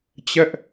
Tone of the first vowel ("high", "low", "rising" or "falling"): high